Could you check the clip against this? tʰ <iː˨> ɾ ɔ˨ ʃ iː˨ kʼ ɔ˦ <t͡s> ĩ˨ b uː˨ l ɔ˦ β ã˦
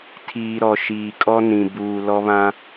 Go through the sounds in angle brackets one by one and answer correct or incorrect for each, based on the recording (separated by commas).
correct, incorrect